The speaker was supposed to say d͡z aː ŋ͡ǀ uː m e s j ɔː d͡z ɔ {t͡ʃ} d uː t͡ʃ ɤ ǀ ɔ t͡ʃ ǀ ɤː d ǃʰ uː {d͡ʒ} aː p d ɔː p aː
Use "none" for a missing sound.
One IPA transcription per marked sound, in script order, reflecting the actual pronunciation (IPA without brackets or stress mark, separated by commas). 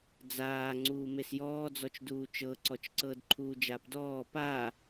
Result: t͡ʃ, d͡ʒ